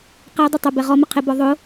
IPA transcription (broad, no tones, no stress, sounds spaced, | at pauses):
q ɛ dˤ ɪ tˤ ʊ b ɛ ʁ ɔ m ɪ qʰ ɪ b ɔ ðˤ ʊ